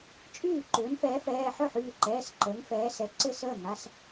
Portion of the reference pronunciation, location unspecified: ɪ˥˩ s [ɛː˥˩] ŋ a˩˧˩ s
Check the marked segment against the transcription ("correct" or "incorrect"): incorrect